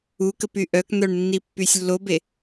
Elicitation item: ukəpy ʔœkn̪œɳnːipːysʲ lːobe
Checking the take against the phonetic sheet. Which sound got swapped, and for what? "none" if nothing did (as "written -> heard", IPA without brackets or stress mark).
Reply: none